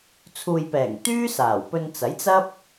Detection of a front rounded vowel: present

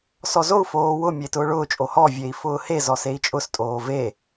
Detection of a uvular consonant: absent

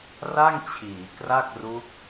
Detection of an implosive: absent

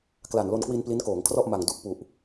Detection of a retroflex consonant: absent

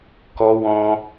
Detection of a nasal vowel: present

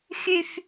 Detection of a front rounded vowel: present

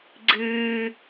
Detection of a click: present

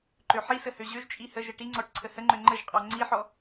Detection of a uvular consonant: present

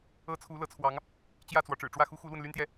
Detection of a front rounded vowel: present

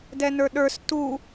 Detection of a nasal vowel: absent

